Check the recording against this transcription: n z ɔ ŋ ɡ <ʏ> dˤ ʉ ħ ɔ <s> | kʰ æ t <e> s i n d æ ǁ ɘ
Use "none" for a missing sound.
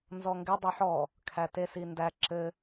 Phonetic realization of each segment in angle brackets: ɪ, none, e

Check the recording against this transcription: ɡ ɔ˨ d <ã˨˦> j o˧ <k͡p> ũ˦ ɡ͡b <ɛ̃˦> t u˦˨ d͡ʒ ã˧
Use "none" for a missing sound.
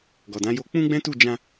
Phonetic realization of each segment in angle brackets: ã˨˦, k͡p, ɛ̃˦

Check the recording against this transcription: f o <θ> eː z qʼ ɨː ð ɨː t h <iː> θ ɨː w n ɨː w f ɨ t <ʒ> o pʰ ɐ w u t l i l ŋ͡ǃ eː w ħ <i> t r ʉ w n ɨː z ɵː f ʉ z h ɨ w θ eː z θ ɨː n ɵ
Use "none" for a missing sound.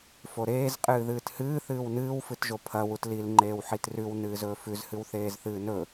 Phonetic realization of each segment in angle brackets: ɾ, ɨː, ʒ, i

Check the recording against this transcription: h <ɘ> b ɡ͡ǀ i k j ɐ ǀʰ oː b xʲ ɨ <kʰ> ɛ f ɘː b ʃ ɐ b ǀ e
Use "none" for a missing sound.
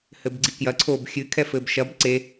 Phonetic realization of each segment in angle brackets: ɘ, kʰ

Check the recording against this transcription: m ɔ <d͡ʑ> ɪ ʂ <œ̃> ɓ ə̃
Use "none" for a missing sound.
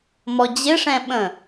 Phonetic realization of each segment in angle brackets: d͡ʑ, ɛ̃

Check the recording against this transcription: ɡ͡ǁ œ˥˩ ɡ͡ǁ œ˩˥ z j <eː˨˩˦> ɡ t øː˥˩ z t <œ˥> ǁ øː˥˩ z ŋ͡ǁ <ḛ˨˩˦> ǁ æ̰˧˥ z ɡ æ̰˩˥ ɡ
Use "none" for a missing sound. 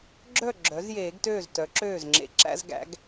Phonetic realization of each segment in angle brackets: eː˨˩˦, œ˩˥, ḛ˨˩˦

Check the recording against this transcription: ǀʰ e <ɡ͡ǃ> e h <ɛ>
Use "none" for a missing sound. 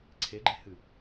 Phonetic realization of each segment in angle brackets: ɡ͡ǃ, ɨ

